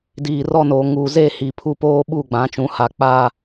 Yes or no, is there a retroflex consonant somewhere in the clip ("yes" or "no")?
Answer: no